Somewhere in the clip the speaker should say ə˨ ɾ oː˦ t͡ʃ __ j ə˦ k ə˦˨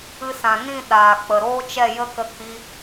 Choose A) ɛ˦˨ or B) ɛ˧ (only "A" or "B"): A